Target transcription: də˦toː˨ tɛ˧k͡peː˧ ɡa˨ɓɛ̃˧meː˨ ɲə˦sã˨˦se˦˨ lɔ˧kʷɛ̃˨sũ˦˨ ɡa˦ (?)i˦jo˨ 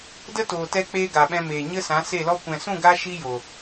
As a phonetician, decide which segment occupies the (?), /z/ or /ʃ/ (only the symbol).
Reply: ʃ